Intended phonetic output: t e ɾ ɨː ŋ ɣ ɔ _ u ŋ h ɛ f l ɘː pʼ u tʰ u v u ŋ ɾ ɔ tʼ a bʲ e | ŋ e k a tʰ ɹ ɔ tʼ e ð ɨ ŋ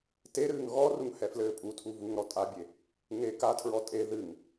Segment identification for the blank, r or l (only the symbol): r